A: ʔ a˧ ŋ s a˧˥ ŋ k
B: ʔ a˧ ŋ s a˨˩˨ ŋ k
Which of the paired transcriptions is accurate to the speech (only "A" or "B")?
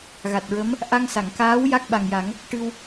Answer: B